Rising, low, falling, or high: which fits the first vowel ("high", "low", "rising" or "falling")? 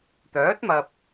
rising